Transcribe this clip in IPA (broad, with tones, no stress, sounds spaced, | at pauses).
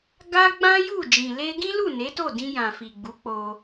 ɡ a˦ ɡ͡b ã˦ j u˦˨ d͡ʒ ĩ˨ l e˧ ɡ ĩ˦ l u˦˨ n e˨˦ t o˦˨ d ĩ˧ j ã˨ f i˨ ɡ͡b u˨˦ k͡p o˧